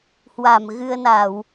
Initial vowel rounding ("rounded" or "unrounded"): unrounded